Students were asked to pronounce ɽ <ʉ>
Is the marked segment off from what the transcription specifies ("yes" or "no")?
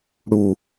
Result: yes